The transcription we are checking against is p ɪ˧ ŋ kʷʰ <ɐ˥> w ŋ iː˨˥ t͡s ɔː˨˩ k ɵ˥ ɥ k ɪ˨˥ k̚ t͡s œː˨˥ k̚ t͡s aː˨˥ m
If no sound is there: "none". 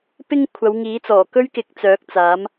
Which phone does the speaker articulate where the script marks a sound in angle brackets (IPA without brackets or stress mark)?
ɐ˨˧